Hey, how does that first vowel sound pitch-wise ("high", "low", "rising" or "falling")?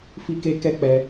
high